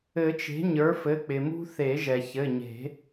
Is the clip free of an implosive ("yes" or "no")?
yes